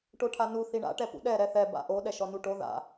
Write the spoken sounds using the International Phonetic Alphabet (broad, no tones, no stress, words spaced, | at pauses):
ʈoʈʰanu θiɳa̰ ʈɛpṵɗɛ ɾɛθɛ ba̰ʔo ɗɛʃɔnuʈo ða̰